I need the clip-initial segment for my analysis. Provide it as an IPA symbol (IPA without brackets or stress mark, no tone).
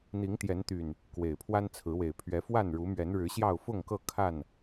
n̪